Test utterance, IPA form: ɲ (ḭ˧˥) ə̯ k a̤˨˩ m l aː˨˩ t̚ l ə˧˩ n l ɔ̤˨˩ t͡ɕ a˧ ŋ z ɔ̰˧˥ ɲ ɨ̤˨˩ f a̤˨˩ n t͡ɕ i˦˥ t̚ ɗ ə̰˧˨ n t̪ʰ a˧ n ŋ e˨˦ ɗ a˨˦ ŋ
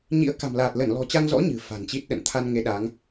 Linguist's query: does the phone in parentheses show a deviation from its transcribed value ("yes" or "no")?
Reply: no